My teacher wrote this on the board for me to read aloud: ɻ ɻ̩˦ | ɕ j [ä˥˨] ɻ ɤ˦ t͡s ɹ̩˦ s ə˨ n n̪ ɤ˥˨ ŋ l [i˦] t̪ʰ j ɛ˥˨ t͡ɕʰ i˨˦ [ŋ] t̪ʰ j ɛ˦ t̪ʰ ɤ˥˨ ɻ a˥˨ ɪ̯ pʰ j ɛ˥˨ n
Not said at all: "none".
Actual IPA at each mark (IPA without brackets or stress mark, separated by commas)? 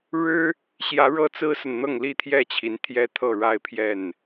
ä˨˦, i˥˨, n